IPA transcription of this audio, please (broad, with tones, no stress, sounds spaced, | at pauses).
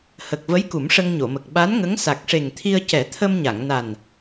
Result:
h ə˨˩ k̚ v ə˧˥ j k u˨˩˦ m ʂ ə˧ ŋ ɲ o˨˩˨ m ə˨˩ k̚ ɓ a˧˥ n ŋ ə˧˥ ŋ s a˨˩ k̚ ʂ e˨˩ ŋ t̪ʰ i˧ ə̯ c ɛ˨˩˦ t̪ʰ ə˧ m ɲ a˨˩˨ ŋ n a˨˩ n